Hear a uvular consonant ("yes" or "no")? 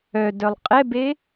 yes